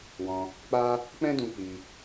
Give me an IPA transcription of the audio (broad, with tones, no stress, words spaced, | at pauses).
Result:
wɔ̃˧ | k͡pa˦ | k͡pɛ̃˦dũ˧ k͡pi˧